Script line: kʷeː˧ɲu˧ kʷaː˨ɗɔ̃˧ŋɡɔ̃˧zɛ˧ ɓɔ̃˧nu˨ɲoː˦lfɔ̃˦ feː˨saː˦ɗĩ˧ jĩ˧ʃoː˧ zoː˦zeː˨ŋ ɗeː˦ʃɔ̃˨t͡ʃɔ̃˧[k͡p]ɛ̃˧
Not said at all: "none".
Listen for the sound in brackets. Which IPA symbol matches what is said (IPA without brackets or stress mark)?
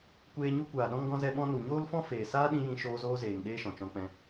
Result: k͡p